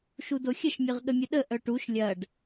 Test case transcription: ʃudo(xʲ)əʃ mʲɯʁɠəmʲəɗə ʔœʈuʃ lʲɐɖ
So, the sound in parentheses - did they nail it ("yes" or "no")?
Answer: yes